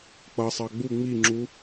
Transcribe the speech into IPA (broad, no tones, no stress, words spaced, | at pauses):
k͡pʌsˤɑ ɡ͡bu ŋ͡miŋ͡ǁu